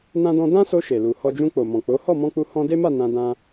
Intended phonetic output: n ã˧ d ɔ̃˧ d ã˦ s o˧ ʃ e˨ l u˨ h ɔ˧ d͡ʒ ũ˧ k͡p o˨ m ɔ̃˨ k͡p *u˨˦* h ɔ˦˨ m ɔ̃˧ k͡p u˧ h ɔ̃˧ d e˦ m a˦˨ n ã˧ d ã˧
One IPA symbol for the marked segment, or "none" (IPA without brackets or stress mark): o˨˦